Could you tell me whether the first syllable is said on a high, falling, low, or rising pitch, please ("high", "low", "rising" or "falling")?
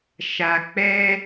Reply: low